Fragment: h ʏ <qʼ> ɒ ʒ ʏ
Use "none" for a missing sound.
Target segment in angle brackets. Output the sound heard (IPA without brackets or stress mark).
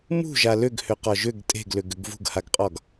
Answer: q